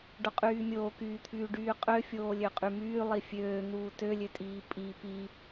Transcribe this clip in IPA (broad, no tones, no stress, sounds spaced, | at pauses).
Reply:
ɖ o qʼ yː mʲ oː k yː t̪ʰ yː ɖ yː qʼ ø fʲ oː lʲ ø qʼ y m yː lˠ i fʲ øː n̪ uː t ø lʲ ø tʼ iː pʼ i p i